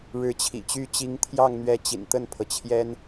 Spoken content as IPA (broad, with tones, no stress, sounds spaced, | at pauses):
ɻ ɻ̩˧˥ t͡ɕʰ ḭ˨˩ t͡ɕ y˥˩ t͡ɕ i˧˥ ŋ t̪ʰ j ɑ˥˩ ŋ n̪ ɥ ɛ˧˥ t͡ɕ ḭ˨˩ n t̪ ə˥˩ n pʰ ɤ˩ t͡ɕʰ j ɛ˥ n